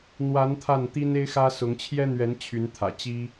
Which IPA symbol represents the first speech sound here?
n̪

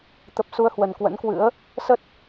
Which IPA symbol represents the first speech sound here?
t̪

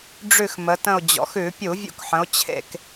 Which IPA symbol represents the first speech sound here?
ɖ͡ʐ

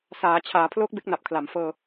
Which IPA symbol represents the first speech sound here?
s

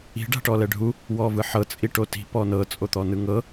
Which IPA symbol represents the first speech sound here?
i̤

